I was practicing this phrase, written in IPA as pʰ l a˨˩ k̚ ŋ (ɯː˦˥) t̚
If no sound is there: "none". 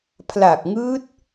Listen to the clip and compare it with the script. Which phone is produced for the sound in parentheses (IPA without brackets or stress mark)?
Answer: ɯː˦˥